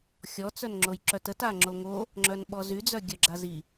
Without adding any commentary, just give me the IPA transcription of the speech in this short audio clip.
xʲ ɔ t͡s œ n ŋ͡ǁ o j ǁ œ t ə t a ŋ͡ǁ o ŋ o | ŋ͡ǁ œ n ɓ ɔ z y d͡z œ ɡʲ œ ɡ͡ǁ a z i

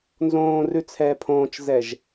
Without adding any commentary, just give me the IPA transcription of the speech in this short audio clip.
n z õː r ʉ t͡sʰ ɛː pʰ õː t͡ʃ z ɛ ʒ

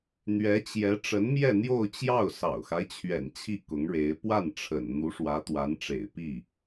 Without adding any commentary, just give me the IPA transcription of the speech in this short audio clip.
n̪ ɥ ɛ˧˥ t͡ɕ j ɛ˧˥ ʈ͡ʂ ə˧˥ n m j ɛ˥˧ n̪ j o˥˧ ʊ̯ t͡ɕ j ɑ˥˩ ʊ̯ s ɑ̰˨˩ ʊ̯ x a˦ ɪ̯ t͡ɕʰ ɥ ɛ̰˨˩ n t͡ɕʰ i˥˩ k ʊ˧˥ ŋ ɻ e˧˥ ɪ̯ p w a˥˩ n ʈ͡ʂʰ ə̰˨˩ n n̪ u˧˥ ʂ w ä˧˥ t̪ w a˧˥ n ʈ͡ʂ ḛ˨˩ ɪ̯ p i˥˩

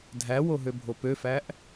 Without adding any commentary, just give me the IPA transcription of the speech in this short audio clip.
dʱ æ w o ɦ ø bʱ o p ø f æ ʔ

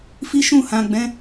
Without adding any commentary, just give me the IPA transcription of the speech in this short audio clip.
f i˦ ʃ ũ˦˨ h ã˨ ɡ͡b ɛ̃˨˦

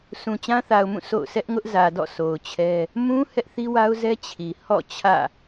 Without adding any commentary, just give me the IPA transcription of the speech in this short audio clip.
sʰ ũ˨ t͡ɕ ã˦ θ a˨ ʊ̯ m ũ˦˨ s o̰˦˨ ʊ̯ sʰ ɛ˦ ʔ ŋ ʊ˦ ʔ z ä˨ d ɔ̰˦˨ s o˨ ʊ̯ t͡ɕʰ ɛ˦ | m ũ˦ h ɛ˦ ʔ θ i˦ w a˦ ʊ̯ z ɛ˦ t͡ɕʰ i˨ h ɔ̰˦˨ t͡ɕʰ ä̰˦˨

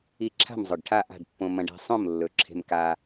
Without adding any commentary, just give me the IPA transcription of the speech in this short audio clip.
i˧ ǁʰ a̤˥˨ m zˤ ɵ˨˩ ɖ ʈʰ a˥˨ ʔ a̤˥˨ ɖ pː õ˧ m ɐ̃˧ ɖ e̤˧ sˤ õ˥˨ m lː ɵ˨˩ ǁʰ e̤˧ m k a˧

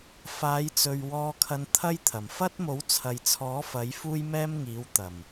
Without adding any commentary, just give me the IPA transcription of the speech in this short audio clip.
f aː˨˧ j t͡s ɵ˨ ɥ w ɔː˧ kʰ ɐ˧ n t̪ʰ ɐ˥ j t̪ʰ ɐ˨˩ m f ɐ˥ t̚ m o˨˥ w t͡sʰ ɐ˨ j t͡sʰ ɔː˨˥ f ɐ˨˥ j f uː˥ j m ɛː˥ m ŋ iː˨˥ w t̪ ɐ˨˩ m

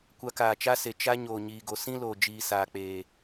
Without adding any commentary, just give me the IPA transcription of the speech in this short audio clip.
kʷ a˧ k aː˨ t͡ʃ a˦ s e˨ t͡ʃ a˦ ɲ oː˨ ɲ iː˨ ɡ o˨ s ĩ˦ l oː˨ d͡ʒ iː˨ s aː˨ k͡p eː˨

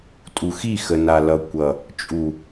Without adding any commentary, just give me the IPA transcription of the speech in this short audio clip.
tʼ u˨ x i˦˨ x ə˨ n a˨ l ʌ˨ kʷ ʌ˨ | t͡ʃʼ u˨

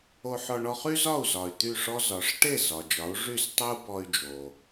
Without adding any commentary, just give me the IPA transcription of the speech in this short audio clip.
o˧ ħ ɔ˧ ɳ ɔ˧ χ y˥ z ɒ˥˩ u̯ z ɒ˩ y̯ t̪ y˥˩ ʂ ɔ˥ z ɒ˩˥ ʂ ʈ e˥˩ z ɒ˩ d͡ʒ ɒ˩˥ u̯ ʐ y˥˩ s tˤ o˥ u̯ b ɔ˧ y̯ d͡ʒ o˩

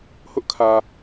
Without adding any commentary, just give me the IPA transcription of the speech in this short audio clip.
h ʊ˦ ʔ kʰ ä˨

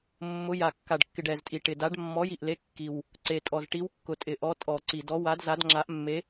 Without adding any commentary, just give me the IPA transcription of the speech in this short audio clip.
mː ʊ˨˥ j a˨˩ kː a˨˩ ɖ kː ɪ˨˩ ɖ ɛ˨˩ z tʼ i˨˩ ʈ ɪ˨˩ d a˨˥ ɖ mː ɔ˨˥ j i˨˩ ʔ l e˨˥ kː i˨˩ w | ǀ e˨˩ tʼ ɔ˨˩ z ʈ i˨˥ w kː ʊ˨˩ tʼ ɪ˨˩ ʔ ɔ˨˥ tʼ ɔ˨˩ ǀ i˨˩ d ɔ˨˥ w a˨˥ d z a˨˥ d ŋ͡ǁ a˨˥ ʔ mː e˨˥

